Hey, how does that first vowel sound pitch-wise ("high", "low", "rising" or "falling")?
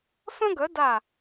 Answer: high